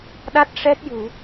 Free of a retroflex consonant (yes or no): no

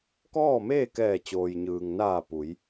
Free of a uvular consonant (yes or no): yes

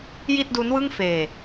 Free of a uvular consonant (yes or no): yes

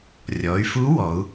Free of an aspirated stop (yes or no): yes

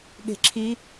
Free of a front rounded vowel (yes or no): yes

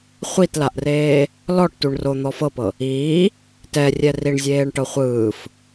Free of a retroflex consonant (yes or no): no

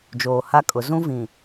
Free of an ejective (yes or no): no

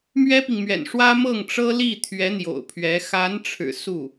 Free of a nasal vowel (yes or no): yes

